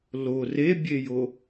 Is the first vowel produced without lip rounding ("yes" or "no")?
no